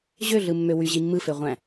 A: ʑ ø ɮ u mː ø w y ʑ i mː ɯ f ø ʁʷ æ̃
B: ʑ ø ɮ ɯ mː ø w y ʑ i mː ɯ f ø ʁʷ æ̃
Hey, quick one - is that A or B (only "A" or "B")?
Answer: B